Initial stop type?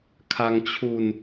aspirated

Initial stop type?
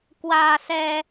plain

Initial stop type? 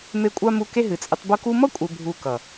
ejective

